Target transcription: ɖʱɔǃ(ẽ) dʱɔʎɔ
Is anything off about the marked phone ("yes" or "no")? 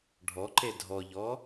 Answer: yes